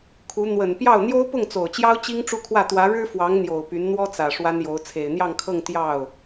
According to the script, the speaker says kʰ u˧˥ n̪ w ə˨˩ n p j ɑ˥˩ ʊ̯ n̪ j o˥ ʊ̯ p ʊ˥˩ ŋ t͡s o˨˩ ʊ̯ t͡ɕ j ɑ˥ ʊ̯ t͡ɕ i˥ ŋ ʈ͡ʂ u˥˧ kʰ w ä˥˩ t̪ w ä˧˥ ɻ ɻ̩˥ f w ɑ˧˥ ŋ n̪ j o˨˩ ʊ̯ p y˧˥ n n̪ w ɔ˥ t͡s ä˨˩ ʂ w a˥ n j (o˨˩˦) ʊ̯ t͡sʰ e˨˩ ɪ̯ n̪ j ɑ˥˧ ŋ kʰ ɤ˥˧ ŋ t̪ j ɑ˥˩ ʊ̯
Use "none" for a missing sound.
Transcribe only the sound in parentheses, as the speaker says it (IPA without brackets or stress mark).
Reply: o˧˥